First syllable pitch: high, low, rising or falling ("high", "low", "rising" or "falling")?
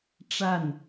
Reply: falling